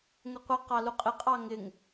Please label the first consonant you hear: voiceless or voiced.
voiced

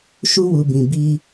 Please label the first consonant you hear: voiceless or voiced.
voiceless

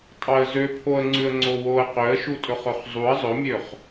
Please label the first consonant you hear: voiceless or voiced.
voiceless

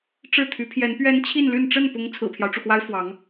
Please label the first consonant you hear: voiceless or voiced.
voiceless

